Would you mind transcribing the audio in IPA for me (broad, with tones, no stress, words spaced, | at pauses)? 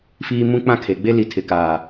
fiː˨ mũ˦k͡pã˦kʰe˨ ɡ͡be˦li˨tʰɪ˨ kaː˨